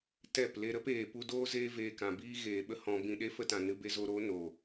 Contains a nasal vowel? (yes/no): yes